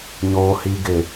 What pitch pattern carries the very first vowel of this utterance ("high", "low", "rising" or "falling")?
low